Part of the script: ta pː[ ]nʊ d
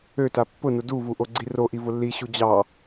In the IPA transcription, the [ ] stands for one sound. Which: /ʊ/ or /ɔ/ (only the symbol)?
ʊ